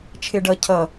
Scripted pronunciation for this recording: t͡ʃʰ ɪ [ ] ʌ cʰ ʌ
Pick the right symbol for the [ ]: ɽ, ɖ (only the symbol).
ɖ